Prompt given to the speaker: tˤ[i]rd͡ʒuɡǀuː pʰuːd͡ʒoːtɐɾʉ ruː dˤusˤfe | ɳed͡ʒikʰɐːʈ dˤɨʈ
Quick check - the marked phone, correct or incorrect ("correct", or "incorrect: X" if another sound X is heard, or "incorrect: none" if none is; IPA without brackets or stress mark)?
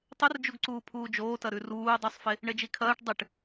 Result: incorrect: ɨ